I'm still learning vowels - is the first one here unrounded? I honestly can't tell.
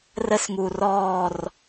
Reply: yes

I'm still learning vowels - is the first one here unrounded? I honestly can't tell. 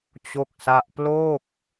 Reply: no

